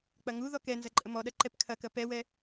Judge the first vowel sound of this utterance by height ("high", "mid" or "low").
low